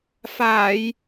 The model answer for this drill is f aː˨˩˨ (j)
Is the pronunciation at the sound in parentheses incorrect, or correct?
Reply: correct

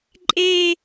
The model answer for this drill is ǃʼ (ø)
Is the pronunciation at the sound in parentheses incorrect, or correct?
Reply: incorrect: e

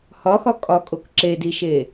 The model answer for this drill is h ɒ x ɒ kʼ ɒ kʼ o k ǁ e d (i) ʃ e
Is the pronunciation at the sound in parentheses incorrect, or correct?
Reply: correct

